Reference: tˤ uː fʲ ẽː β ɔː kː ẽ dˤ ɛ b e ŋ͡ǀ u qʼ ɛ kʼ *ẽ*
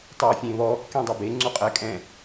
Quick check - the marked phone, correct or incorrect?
incorrect: ɛ̃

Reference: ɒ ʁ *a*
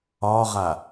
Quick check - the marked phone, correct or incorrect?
correct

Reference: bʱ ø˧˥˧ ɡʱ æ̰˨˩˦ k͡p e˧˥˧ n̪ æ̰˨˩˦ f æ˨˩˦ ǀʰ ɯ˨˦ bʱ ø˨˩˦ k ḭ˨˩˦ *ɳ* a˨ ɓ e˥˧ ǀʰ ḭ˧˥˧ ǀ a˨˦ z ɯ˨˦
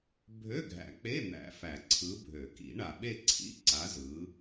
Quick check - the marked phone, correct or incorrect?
correct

